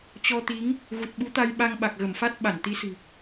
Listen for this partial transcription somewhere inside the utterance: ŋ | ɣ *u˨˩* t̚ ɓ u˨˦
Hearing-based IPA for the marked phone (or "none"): u˨˩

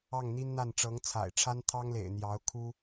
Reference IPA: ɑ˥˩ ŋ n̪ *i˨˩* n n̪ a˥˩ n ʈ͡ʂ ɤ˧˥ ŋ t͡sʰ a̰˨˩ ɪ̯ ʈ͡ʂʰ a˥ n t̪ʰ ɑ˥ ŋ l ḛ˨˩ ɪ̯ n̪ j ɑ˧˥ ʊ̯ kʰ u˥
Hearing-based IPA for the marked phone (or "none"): i˥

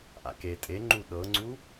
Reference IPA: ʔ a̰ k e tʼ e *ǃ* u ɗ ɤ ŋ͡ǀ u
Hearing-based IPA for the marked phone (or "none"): ŋ͡ǃ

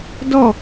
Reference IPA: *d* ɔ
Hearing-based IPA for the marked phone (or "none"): d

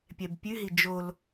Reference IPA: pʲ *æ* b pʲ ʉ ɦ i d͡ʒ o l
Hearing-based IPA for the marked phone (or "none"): ɛ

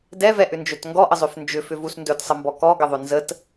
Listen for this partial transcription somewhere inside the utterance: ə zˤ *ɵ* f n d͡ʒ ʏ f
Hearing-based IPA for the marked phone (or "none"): ø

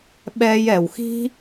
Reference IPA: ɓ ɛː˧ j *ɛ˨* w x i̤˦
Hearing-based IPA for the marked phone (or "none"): ɛ˨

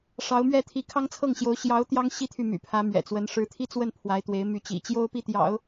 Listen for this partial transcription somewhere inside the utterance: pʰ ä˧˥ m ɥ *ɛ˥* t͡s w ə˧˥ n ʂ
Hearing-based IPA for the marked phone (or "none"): ɛ̰˨˩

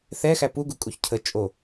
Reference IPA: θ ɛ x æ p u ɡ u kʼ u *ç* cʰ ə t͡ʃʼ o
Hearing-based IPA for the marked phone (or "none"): ç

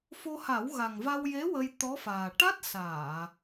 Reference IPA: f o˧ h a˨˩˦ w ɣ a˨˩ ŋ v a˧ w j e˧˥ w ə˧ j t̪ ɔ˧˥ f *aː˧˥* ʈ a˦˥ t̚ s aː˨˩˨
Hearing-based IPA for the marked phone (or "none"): aː˨˩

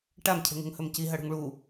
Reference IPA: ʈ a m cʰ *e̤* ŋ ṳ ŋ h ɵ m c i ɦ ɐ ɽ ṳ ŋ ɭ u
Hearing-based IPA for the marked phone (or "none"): e̤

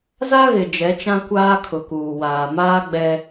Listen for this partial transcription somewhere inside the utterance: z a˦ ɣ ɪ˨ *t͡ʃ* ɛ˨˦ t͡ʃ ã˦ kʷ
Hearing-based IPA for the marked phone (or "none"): d͡ʒ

